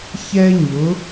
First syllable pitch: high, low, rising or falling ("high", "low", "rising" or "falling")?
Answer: high